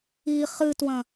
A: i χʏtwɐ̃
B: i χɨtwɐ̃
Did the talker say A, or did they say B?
B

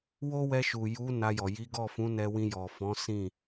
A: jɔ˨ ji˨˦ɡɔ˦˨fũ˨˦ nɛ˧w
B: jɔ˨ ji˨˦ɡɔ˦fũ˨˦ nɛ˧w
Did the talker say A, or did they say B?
A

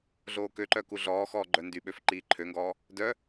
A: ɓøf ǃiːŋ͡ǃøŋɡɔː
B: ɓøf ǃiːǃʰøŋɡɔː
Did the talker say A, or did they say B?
B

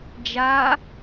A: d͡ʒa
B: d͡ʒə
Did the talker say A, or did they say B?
A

